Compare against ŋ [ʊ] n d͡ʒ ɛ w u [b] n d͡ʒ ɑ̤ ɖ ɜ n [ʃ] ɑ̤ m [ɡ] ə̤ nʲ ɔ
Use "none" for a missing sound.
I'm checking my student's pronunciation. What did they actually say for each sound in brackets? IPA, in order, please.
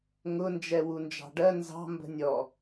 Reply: ʊ, none, z, b

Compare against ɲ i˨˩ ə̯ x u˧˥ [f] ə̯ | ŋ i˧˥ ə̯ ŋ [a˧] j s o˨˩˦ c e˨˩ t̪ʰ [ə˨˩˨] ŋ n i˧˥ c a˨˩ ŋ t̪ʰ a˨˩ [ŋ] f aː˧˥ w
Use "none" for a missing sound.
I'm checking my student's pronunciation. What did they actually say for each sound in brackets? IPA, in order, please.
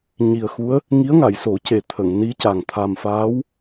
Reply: none, a˨˩˨, ə˨˩˨, m

